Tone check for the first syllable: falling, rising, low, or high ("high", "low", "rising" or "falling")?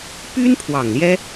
high